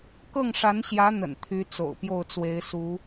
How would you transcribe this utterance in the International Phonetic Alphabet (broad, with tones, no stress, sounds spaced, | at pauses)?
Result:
k ɤ˥˩ ŋ ʂ a˧˥ n ɕ j ä˧˥ n̪ ə̰˨˩ n t̪ʰ y˧˥ t͡s o̰˨˩ ʊ̯ p j o˥˩ ʊ̯ t͡s w e˧˥ ɪ̯ s u˧˥